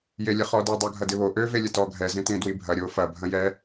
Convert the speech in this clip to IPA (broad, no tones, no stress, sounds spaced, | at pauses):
j e lʲ ə χ ɔ d ə dˤ o ɡʱ ɐ d ɪ β o ʔ ø v e lʲ ə t ɔ ɡʱ ɛ z ẽ t ẽ d w i bʱ ɐ ɾʲ o f ɐ bʱ ɐ̃ j ɛ